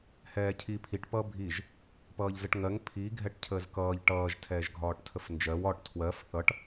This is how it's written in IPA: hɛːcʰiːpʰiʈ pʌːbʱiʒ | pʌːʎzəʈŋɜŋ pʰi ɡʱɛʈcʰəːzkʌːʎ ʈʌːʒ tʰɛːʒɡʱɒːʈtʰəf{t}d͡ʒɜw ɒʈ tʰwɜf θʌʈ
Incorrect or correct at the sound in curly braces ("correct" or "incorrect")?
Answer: incorrect